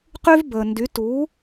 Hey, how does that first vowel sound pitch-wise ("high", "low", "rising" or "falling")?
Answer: high